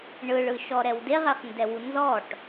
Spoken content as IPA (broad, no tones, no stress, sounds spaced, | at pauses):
ɳ ɯ ɭ ɯ ʃ ɔ ɾ ɛ w d e ʁ ɛ χ n d ɛ w u n z ɔ ʈ